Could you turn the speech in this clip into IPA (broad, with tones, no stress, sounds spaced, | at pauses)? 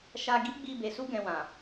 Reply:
ʃ a˧ ɡ i˦ ɡ͡b i˧ b e˨ s u˧ ɡ ɛ̃˨ w ã˨